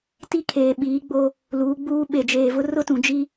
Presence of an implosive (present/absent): present